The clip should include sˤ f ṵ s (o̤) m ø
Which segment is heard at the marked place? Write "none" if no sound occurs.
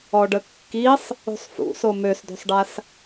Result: o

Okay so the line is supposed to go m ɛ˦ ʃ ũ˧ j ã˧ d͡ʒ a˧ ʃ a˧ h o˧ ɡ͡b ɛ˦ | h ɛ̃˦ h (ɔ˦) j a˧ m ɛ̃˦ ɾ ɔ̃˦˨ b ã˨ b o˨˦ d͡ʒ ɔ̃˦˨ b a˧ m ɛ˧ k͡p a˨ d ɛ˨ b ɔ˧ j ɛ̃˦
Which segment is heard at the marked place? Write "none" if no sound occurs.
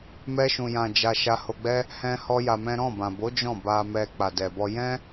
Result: ɔ˦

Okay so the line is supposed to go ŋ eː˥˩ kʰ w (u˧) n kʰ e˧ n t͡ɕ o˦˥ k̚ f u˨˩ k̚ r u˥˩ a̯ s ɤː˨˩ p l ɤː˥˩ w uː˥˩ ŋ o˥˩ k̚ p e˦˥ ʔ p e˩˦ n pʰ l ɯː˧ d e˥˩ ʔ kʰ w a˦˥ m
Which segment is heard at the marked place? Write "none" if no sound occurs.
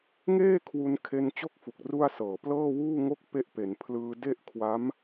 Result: u˧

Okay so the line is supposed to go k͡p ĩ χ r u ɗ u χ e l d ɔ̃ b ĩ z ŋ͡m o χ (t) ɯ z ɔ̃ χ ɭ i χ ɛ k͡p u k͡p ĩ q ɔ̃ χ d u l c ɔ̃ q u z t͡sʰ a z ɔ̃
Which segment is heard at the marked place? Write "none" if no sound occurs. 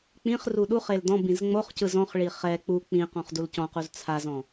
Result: c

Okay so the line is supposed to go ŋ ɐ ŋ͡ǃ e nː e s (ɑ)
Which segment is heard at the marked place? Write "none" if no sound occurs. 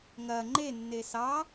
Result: ɑ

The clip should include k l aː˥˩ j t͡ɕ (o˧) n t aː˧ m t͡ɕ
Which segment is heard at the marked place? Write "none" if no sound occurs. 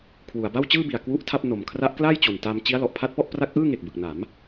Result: o˨˩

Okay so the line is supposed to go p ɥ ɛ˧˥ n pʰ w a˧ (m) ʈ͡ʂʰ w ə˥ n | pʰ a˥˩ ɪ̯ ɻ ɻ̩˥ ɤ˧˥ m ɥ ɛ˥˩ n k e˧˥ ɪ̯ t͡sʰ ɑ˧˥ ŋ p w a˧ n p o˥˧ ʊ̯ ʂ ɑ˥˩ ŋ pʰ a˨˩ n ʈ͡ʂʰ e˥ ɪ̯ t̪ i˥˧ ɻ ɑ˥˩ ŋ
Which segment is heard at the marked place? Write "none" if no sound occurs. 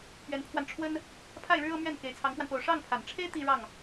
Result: n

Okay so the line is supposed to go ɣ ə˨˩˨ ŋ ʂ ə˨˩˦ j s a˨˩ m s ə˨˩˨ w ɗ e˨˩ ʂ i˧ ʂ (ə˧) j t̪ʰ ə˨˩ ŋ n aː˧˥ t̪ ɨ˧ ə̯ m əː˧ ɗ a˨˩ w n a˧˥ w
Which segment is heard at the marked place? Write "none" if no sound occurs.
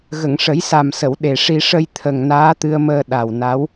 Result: ə˧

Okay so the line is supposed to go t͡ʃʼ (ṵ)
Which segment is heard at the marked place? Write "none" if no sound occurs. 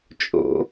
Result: o̰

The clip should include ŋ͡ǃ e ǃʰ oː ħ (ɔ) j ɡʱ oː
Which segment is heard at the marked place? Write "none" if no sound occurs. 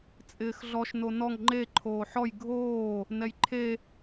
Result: ɔ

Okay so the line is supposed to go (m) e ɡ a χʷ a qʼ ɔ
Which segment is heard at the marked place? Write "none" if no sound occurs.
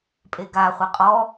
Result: pʼ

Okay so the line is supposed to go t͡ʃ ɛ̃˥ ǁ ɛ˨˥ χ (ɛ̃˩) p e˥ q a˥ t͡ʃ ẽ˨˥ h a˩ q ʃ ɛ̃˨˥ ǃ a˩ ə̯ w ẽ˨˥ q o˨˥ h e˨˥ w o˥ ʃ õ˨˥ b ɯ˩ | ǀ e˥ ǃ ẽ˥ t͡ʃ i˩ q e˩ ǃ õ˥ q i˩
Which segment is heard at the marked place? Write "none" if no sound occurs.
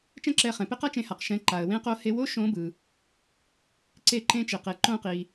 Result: ɛ̃˩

